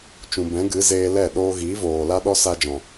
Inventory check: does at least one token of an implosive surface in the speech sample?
yes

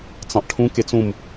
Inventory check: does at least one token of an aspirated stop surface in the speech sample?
yes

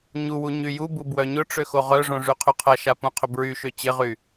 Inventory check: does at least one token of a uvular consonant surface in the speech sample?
yes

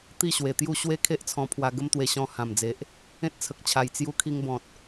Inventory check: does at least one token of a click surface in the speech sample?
no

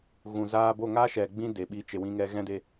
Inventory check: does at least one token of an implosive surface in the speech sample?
yes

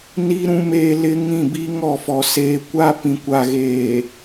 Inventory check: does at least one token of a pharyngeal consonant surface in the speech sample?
no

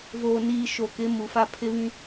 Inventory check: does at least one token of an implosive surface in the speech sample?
no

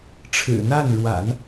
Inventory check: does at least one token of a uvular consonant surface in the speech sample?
no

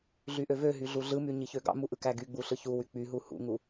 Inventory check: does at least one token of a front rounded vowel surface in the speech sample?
yes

